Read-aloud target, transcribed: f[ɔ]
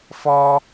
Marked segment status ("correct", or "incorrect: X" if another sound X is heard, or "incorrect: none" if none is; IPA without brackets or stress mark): correct